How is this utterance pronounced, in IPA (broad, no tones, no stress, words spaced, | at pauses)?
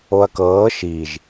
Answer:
oɐ̯kɤː ʃiʒ